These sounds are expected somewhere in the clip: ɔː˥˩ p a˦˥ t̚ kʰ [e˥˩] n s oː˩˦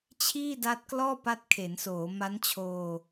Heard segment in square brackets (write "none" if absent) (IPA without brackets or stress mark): e˩˦